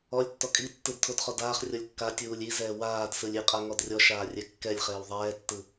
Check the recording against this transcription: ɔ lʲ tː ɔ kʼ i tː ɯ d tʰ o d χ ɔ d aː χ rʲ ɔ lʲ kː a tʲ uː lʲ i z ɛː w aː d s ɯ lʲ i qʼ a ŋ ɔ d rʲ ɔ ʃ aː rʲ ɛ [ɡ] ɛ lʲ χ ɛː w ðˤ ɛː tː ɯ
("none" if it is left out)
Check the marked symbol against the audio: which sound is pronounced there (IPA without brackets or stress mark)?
kː